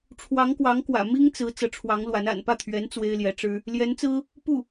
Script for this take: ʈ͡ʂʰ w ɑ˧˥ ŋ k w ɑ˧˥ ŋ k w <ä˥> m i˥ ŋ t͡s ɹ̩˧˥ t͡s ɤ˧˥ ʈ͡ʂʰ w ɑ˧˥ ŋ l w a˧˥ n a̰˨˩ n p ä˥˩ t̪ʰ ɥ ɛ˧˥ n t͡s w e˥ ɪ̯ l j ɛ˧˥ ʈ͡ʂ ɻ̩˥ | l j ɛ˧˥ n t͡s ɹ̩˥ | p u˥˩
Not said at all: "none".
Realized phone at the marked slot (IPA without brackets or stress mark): ä̰˨˩